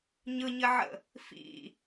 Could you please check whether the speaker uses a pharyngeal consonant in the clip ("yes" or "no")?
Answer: yes